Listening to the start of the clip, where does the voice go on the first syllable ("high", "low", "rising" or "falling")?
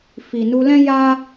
low